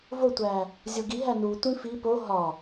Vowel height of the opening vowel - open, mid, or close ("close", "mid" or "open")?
mid